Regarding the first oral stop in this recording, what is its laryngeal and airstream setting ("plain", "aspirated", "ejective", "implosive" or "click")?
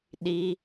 implosive